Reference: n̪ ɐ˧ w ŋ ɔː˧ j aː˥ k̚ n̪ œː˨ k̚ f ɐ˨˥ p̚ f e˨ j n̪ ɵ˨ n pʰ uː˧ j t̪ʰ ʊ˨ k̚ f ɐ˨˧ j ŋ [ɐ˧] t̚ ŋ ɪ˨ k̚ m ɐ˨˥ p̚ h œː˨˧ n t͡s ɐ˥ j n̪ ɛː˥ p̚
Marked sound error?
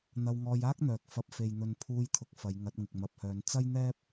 yes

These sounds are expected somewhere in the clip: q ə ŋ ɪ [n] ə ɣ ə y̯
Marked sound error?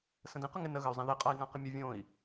no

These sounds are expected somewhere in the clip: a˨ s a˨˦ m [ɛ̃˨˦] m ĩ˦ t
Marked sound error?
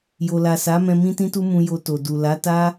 yes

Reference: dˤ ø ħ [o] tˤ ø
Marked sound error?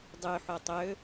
no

